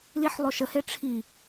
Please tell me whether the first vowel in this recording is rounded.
no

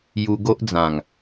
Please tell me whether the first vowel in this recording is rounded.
yes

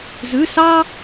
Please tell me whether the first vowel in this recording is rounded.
yes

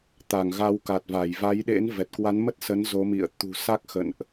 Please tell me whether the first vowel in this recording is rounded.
no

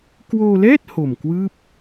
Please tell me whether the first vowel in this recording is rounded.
yes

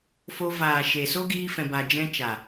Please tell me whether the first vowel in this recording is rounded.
yes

